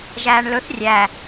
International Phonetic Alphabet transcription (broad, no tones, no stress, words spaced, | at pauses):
ʒæːɳlɵθ rʲæ